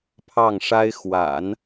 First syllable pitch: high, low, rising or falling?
falling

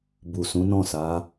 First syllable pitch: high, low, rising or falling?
low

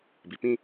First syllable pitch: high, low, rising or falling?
low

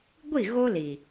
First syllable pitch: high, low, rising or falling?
falling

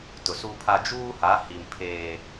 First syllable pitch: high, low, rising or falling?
low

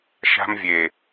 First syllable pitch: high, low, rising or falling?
high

